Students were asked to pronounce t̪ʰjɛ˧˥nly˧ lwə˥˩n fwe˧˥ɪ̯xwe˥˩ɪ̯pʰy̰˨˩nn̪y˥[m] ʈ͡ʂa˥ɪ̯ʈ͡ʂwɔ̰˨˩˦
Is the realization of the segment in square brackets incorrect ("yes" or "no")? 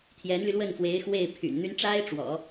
yes